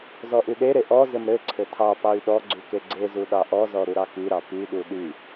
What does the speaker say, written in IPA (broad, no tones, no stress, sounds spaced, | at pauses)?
z ɔ ʔ y ɗ e ɾ e ʔ ɔ z ɘ m ɾ ɘ ǀʰ ɘ tʰ ɑ p ɑ y̯ ɗ ɔ ɡ͡ǀ y k e ɡ͡ǀ e z u ɗ ɑ ʔ ɔ z ɔ ɾ u ɾ ɑ k y ɾ ɑ p y ɗ u ɗ y